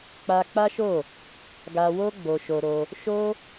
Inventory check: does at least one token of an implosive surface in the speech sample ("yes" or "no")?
no